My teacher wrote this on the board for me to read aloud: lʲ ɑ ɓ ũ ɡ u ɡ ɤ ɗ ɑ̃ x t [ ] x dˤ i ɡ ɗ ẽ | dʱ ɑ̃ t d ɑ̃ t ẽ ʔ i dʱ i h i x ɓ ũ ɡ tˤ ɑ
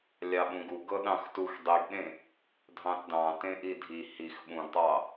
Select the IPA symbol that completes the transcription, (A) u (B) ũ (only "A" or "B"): A